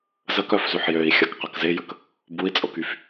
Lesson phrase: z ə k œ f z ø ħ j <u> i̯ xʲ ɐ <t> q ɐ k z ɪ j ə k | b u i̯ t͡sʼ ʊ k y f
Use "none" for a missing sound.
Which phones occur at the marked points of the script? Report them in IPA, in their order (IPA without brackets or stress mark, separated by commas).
ø, k